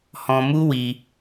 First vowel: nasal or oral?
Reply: nasal